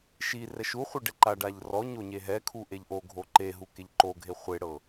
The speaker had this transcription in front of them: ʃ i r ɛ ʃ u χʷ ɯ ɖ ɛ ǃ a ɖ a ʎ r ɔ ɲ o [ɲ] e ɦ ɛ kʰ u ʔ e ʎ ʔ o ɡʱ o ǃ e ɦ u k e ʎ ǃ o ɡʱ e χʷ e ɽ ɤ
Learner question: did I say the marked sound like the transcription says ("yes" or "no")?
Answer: yes